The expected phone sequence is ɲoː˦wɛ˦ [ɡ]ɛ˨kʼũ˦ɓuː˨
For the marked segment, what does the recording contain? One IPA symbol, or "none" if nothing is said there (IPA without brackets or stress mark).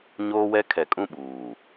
kʰ